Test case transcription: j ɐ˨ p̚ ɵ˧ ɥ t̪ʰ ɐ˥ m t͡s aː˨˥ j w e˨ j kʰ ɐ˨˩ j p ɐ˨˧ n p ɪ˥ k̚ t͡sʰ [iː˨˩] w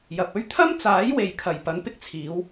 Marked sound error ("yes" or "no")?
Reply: yes